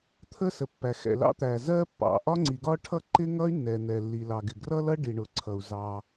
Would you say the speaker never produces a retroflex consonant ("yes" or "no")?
no